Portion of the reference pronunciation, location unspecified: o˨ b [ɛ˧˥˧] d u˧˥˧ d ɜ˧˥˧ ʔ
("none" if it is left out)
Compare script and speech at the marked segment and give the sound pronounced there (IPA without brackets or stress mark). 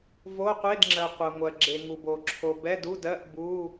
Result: ɛ˧˥˧